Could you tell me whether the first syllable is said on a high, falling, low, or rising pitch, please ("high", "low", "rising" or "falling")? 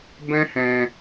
high